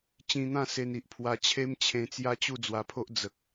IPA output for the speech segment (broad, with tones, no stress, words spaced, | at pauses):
t͡ɕĩ˧n̪ã˥˧ se˧ni˨ʔ pʰwa˧t͡ɕʰe˦mt͡ɕʰẽ˧ t͡sja˦t͡ɕu˥˧ d͡zwa˧pʰo˦ʔ d͡zə˨k̚